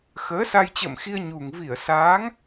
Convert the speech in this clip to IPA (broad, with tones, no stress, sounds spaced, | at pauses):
x əː˨˦ s a˧ j t͡ɕ ə̰ː˧˨ m x i˧ ə̯ ɲ u˨˩ ŋ v i˧˩ ə̯ s aː˨˦ ŋ